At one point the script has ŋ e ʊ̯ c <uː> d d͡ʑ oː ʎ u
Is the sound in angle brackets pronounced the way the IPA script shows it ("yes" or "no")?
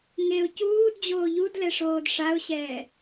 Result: yes